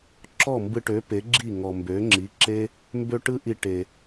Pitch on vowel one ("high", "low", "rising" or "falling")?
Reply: falling